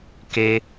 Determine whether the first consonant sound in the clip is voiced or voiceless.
voiceless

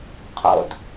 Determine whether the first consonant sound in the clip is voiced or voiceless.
voiceless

